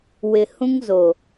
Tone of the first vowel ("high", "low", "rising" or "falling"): low